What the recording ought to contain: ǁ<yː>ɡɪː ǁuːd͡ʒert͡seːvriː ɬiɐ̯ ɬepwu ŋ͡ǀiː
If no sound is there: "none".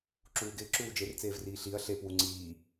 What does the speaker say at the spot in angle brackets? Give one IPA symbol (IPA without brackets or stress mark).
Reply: uː